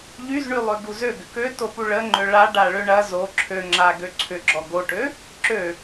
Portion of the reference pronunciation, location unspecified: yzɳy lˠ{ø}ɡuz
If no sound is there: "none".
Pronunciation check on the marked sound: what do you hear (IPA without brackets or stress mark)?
ø